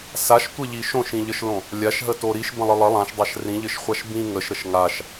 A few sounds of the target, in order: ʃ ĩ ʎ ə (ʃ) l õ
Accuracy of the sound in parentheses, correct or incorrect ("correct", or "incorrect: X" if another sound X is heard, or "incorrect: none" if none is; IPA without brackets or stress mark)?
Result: correct